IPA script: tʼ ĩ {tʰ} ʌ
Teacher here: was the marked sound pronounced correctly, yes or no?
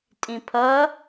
no